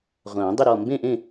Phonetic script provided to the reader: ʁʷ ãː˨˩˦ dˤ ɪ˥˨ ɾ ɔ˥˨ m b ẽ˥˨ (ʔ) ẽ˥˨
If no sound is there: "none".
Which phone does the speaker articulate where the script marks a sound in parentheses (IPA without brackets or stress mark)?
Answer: ʔ